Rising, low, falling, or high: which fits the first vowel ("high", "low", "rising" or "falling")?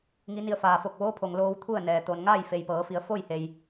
rising